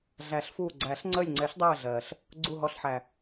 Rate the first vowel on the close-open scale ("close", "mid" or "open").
open